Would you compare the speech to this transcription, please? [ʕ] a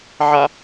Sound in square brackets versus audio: correct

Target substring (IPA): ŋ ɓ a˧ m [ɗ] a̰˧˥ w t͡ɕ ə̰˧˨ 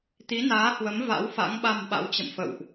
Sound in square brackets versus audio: incorrect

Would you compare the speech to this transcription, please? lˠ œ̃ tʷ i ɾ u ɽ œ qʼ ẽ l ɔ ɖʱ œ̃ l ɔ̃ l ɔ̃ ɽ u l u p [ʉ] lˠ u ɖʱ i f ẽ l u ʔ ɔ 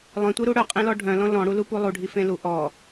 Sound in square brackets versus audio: incorrect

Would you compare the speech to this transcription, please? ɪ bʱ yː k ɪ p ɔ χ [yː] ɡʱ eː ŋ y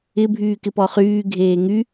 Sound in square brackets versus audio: correct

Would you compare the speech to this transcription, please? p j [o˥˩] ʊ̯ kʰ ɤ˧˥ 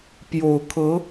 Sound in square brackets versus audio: incorrect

